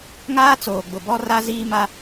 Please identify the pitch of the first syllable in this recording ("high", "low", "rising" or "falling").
high